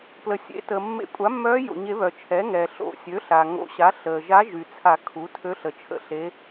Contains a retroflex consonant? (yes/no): no